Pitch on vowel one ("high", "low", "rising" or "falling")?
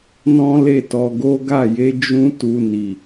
high